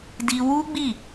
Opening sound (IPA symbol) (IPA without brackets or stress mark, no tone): d